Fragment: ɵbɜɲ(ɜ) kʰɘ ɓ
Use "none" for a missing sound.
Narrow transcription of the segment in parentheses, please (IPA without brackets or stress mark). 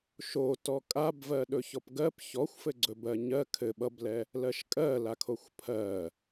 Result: ɜ